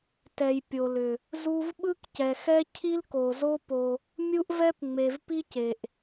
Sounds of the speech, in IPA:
t ɛ˨ j pʲ o˨ l ʏ˨ | z u˦ v ɓ ɯ˦ k c ɛ˨ x ɛ˦ cʰ i˦ l k o˨ z o˦ p o˦ | mʲ u˦ ʔ v ɛ˦ p ŋ͡m e˨ v p i˦ c e˨ ʔ

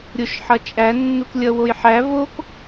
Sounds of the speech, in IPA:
ɾʲ o ʃ ħ ʌ t͡ʃʼ æ nː u k lʲ ʌ w o j ħ æ v o k

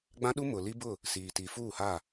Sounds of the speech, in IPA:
ɡ͡b ã˦ ɗ u˦ m ʊ˨ l i˦ b ʊ˦˨ | s iː˨ t i˨ f uː˦˨ h a˦˨

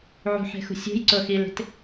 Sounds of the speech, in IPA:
ʕ ṳ ħ e̤ x ṳ sʲ ṳ j ǀ ʊ x i l e̤ t

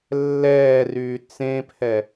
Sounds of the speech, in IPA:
lː ɛː r yː t͡s ẽ pʰ ɛ

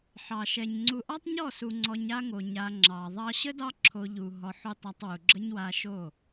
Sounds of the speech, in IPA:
ħ ɑ˨ ʃ ɛ˨ ɲ ŋ͡ǀ u˨ ʔ ɑ˦ tˤ ɲ ɔ˦˨ s u˨ ŋ͡ǀ ɔ˧ ɲ a˦ ŋ o˨ ɲ a˧ ŋ͡ǁ ɑ˨ ðˤ ɑ˧ ɕ ə˦ d ɑ˦ ǁʰ o˧ ʎ u˨ ɦ ɔ˧ ħ u˦ tˤ a˧ tˤ w u˨ ɡ͡ǁ ə˦ ɲ w a˧ ʃ o˦˨

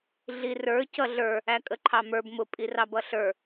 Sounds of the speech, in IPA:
ɮ i r ə˞ c ʌ ɮ ə˞ | æ kʼ ə ǃʰ ɑ m ə˞ b m ʊ pʼ i r ɑ b ʌ ɬ ə˞

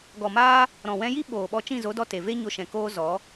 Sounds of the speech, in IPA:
ɡ ɔ˨ m aː˦ | ɾ ɔ̃˨ w ɛ̃˧ j i˦ ɓ oː˨ ɓ ɔ˧ t͡ʃ ĩ˦˨ z o˨˦ d ɔ˧ t e˨ v e˦ ɲ o˧ ʃ ɛ̃˨ k oː˦ z ɔ˨˦

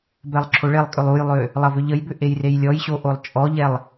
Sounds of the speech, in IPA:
b ɛ lˠ ǁʰ o ɭ e lˠ kʼ ʏ lˠ u j lˠ ø | lˠ ɐ v ʏ ʎ ə j b ʏ ʔ e j r e j lʲ ɔ j ɕ o ʔ o lˠ t͡ʃʼ ɔ ʎ ɛ lˠ

